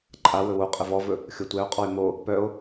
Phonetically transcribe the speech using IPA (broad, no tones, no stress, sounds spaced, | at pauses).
ǃʼ a w ɵ w o qʼ ə v ɔ v ɵ | xʲ o tʷ ɛ o̯ qʼ ɔ e̯ m o | p œ o̯